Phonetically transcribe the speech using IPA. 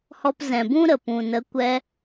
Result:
h ɔ˧ p z ɛ̃˨ b ũ˦ ɾ ə˨ p ũ˨ n ə˨˦ kʷ ɛ˧

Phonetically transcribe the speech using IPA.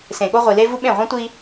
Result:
s ẽ˨ ɠ o˦ ʁʷ i˨ l e˦ v u˦ ɓ ẽ˦˨ ʁʷ ẽ˦ tʷ i˦

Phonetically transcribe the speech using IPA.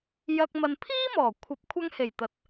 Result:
j ɐ˧ k̚ m ɐ˨ n pʰ iː˥ m ɔː˨˩ kʷʰ ɐ˨˥ p̚ kʷʰ ɐ˥ ŋ h e˨˩ j t̪ ɐ˨ t̚

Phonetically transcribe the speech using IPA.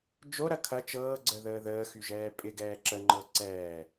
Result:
d͡ʒ o ɾ ɐ kʰ ɐ t͡ʃ ɤː ɡ͡ǀ ə ð əː ð əː x y ʒ ɛː pʼ ɪ ɡ ɛː ǁ ə ŋ͡ǃ ɤ ǀ ɛː

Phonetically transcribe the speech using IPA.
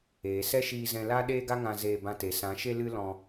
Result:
eː˨ s ɛ˦ ʃ iː˧ z ɛ̃˧ l a˦ ɗ eː˦ ɡ a˦ ŋ ã˧ z eː˧ b ã˧ t e˨ s ã˨˦ ʃ e˦ l ɨ˦ l ɔ̃˧

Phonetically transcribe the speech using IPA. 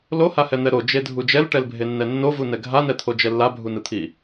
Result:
l o h a h ɛ n̪ ɛ ɾ o d͡ʒ e dʱ u d͡ʒ ɛ l ʈ ɛ l bʱ e nː ɛ nː o v u n ɛ ɡʱ a n ɛ t̪ʰ o d͡ʒ ɛ lː a bʱ u n ɯ t̪ʰ i

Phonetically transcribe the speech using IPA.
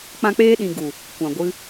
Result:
k͡p ã˦ k͡p eː˧ ɗ ĩ˨ ɡ u˨ | kʷ ã˨ ɡʷ ɨ˧

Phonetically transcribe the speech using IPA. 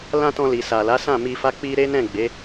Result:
l ã˧ t ɔ̃˧ l i˨ s a˨ l a˨˦ s ã˦˨ m i˧ f a˧ k͡p i˧ ɾ e˦ n ɛ̃˦˨ ɡ͡b e˨˦

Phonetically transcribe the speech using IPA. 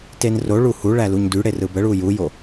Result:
t e n r o ɭ u h u ɭ æ l u ɲ d y ɽ e r ɯ b ə ɭ u j u j o

